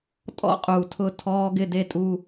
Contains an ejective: yes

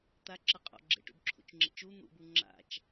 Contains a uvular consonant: yes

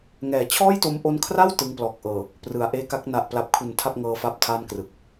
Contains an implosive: no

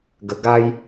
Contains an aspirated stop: no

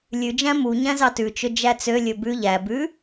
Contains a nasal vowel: yes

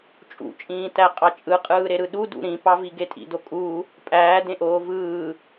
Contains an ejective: yes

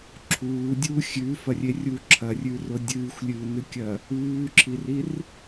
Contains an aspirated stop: yes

